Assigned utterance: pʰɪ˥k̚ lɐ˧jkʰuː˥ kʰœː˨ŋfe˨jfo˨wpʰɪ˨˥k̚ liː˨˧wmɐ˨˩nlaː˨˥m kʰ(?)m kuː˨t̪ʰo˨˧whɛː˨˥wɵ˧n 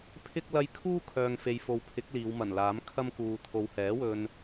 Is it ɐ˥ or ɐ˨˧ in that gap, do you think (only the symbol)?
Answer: ɐ˥